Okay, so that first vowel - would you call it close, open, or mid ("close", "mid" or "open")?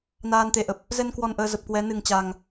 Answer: open